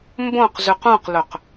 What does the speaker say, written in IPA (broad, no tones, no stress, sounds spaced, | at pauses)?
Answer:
m b õ q z ʉ q ũ q l ɵ q